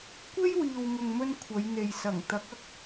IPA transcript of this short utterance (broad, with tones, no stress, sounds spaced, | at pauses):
kʷ e˥ j w iː˨ w ŋ ʊ˨ ŋ m ɵ˧ n kʷʰ ɐ˨˧ j n̪ e˨ j s ɐ˨˩ ŋ t̪ ɐ˨˥ k̚ ɐ˨ k̚